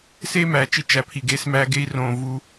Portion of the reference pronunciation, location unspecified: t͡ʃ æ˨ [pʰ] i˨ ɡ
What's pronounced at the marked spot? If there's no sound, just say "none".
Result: pʰ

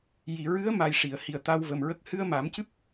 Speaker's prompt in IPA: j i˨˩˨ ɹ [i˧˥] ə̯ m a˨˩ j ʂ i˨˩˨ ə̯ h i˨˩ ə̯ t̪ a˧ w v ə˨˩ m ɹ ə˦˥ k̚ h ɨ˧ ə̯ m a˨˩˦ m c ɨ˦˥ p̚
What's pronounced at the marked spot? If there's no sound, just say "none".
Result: ɨ˧˥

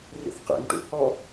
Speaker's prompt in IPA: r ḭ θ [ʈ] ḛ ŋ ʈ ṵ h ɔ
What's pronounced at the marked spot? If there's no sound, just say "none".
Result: q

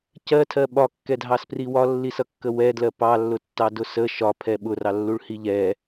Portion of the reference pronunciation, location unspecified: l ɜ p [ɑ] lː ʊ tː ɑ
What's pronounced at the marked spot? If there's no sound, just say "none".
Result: ɑ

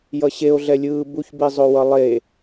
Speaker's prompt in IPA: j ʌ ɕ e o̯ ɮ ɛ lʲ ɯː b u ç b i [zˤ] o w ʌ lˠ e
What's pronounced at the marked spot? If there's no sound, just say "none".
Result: zˤ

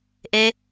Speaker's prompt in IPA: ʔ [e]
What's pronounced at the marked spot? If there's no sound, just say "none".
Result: e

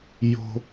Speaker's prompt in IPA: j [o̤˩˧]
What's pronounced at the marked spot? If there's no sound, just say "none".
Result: o̤˥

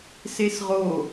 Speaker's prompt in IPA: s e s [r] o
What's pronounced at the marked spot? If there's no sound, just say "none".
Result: ʁ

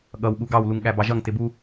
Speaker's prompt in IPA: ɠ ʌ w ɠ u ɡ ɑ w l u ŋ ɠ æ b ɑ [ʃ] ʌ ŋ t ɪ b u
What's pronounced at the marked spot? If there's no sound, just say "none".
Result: ʒ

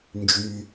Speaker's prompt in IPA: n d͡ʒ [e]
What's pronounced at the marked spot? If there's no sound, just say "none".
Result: y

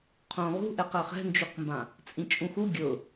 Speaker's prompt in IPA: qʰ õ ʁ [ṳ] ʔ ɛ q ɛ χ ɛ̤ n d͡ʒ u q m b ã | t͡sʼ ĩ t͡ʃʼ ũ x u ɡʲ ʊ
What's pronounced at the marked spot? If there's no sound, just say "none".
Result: ṳ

